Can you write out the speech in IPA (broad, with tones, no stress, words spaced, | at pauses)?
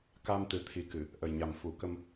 ka˧m t̪ɨ˨˩˦t̪ʰi˨˩kɨ˨˩˨ | ʔə˨˩jɲa˨˩mfu˨˩˦kə˧m